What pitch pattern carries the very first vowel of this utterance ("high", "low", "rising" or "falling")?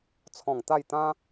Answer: low